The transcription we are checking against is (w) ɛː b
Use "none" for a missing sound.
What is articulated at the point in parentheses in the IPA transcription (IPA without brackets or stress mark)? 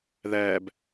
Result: ð